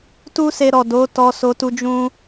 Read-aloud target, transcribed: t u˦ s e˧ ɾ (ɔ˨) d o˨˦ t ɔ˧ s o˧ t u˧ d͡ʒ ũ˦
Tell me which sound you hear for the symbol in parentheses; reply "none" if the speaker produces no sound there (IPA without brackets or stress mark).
ɔ˨